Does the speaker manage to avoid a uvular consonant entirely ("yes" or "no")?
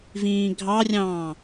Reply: yes